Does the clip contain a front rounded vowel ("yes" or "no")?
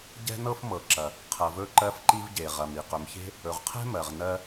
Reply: no